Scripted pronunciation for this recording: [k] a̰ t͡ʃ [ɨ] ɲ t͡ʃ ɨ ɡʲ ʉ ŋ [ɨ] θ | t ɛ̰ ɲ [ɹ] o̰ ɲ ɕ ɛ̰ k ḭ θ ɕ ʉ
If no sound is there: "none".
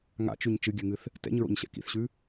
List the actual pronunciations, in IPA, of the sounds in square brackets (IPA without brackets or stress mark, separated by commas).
ŋ, ʉ, ɨ, ɹ